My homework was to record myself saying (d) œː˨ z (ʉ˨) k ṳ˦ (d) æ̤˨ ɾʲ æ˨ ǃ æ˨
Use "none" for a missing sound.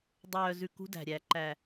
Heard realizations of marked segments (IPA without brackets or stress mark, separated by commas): dˤ, ʉ˨, d